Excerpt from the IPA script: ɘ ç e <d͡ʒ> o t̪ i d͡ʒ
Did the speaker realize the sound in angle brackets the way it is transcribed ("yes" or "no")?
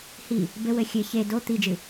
no